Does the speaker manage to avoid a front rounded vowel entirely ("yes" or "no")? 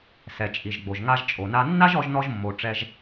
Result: yes